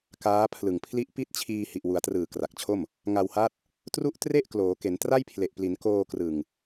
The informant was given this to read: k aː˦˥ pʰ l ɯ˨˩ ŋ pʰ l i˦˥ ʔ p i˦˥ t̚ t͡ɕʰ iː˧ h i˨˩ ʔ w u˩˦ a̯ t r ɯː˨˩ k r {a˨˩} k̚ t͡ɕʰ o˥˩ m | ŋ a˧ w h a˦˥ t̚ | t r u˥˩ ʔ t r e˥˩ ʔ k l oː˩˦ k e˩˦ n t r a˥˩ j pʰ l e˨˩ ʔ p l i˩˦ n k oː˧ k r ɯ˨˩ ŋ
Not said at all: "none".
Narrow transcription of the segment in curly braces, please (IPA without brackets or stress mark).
a˨˩